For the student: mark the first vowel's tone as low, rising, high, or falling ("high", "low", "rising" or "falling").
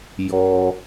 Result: high